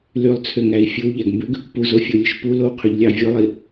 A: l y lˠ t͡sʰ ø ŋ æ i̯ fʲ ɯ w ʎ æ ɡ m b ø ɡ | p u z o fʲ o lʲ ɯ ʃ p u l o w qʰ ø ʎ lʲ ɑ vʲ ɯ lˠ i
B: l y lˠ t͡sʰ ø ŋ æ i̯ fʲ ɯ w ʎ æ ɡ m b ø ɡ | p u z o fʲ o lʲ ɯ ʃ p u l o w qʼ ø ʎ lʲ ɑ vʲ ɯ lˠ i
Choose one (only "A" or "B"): A